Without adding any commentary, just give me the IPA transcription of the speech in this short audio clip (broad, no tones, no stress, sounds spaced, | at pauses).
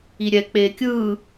i ɾʲ ɛ k͡p eː kʲ ɯː